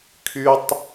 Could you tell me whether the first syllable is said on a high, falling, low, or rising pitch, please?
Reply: high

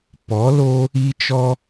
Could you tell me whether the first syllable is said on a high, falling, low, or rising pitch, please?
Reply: rising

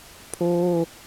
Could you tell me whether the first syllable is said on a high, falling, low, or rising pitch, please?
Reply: high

